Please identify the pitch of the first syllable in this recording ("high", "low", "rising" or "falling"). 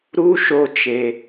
high